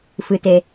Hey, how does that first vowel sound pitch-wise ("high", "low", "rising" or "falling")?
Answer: low